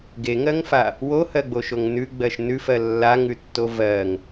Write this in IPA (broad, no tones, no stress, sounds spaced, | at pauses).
ɡ e ŋ ɜ ŋ f a | w o h ɜ ɡ͡b o ʃ o ŋ n ʉ ɡ͡b ɜ ʃ n ʉ f ɜ lː a ŋ ʉ tː o v ɜ ŋ